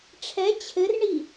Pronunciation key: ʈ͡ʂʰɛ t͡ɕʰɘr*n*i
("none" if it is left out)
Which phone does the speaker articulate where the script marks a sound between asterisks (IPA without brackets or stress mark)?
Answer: ɳ